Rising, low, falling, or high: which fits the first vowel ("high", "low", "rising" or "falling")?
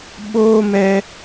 high